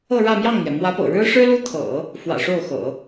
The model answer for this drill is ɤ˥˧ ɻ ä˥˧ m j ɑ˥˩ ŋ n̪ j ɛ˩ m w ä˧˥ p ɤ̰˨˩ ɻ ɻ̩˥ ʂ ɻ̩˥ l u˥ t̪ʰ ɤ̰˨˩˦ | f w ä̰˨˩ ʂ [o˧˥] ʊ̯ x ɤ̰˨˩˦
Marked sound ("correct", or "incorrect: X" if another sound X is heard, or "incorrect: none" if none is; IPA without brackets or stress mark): incorrect: o˥˩